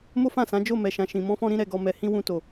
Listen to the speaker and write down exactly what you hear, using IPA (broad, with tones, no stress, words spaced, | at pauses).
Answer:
mo˦fã˦˨sã˨˦ d͡ʒo˦˨ mɛ˨ʃã˨ʃĩ˨ mɔ̃˧fɔ̃˧ɾĩ˧ ɾɛ˧ɡɔ˧mɛ˧ hĩ˦wũ˧to˨